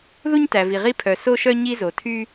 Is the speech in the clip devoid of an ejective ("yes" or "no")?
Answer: yes